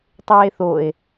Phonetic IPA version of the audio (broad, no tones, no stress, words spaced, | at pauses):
tˤeːθoe̯